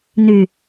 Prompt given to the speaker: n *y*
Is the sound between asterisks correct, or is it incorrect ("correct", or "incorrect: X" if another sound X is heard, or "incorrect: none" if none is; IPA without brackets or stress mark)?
correct